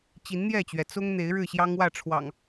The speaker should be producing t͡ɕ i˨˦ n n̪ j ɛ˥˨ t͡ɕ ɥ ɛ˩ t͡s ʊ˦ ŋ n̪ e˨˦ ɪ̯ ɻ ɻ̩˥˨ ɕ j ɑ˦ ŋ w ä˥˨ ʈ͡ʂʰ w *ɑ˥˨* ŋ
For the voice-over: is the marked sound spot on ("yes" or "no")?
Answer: no